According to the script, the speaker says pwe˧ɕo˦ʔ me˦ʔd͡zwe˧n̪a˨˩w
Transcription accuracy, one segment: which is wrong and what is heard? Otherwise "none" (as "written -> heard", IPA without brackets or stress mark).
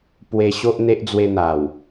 m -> n̪